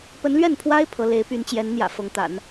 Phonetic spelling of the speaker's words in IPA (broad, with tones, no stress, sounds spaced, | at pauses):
p ə˧˥ n l ɥ ɛ˥˩ n pʰ w a˥ ɪ̯ pʰ ɤ˧˥ l e˧˥ ɪ̯ p y˧˥ n t͡ɕ j ɛ˧˥ n n̪ j ä̰˨˩ f ɤ˧˥ ŋ t̪ a̰˨˩˦ n